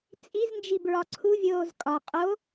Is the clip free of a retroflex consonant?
yes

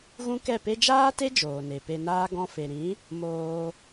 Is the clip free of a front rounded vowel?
yes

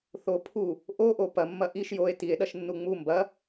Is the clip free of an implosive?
no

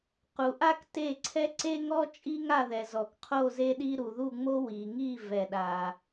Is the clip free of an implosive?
no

